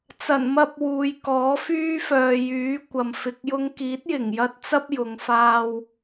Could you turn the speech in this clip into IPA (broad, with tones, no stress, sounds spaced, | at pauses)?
t͡s ɐ˨˩ n m ɐ˧ p̚ w uː˨ j k ɔː˨˥ f yː˥ f œː˨ j yː˨˥ kʷ ɐ˨ m f ɪ˧ k̚ j ʊ˥ ŋ k iː˨˥ t̚ j ɪ˨˩ ŋ j ɐ˥ t̚ t͡s ɐ˥ p̚ j ʊ˨˧ ŋ f aː˧ w